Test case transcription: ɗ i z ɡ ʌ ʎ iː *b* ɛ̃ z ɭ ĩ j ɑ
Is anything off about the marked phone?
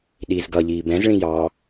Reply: no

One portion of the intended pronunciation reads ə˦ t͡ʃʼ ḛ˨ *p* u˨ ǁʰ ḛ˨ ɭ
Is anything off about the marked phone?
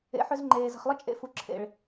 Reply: yes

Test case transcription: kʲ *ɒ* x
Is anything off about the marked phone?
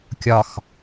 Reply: no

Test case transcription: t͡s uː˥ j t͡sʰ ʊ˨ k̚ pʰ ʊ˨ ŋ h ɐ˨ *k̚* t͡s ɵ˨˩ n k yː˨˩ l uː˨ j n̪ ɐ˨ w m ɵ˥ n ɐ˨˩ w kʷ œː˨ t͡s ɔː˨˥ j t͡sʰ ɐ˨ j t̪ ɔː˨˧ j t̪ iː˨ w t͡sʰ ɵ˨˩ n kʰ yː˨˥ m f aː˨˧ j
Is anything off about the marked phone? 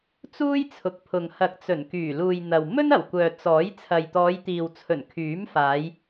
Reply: no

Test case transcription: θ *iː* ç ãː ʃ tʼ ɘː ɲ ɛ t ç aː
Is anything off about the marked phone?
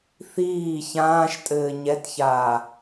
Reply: no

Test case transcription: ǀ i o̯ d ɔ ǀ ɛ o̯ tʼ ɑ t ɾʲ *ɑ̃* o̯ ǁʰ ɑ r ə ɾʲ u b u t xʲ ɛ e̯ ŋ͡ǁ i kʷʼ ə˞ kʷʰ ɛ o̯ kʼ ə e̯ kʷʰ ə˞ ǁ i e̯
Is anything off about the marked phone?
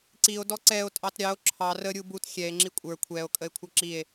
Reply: yes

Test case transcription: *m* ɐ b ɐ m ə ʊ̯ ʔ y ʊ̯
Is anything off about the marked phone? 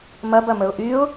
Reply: no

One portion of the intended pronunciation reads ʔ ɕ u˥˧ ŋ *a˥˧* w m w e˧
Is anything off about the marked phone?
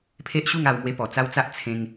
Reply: yes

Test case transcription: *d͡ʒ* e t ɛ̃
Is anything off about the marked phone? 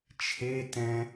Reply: yes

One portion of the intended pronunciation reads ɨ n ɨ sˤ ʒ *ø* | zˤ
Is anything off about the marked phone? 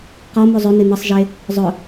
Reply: yes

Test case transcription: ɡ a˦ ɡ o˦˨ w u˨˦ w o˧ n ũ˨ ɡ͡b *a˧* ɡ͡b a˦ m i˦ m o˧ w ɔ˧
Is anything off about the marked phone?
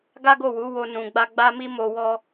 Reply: no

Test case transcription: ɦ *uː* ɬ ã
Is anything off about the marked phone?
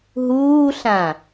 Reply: no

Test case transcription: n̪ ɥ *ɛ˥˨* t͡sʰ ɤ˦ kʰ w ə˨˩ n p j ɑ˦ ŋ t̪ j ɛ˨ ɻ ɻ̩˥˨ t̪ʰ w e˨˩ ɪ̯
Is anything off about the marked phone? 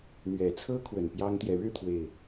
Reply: yes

